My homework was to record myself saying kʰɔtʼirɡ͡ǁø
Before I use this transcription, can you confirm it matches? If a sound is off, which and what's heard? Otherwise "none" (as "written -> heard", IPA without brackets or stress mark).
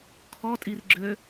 none